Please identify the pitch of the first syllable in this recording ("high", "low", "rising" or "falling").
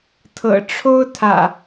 low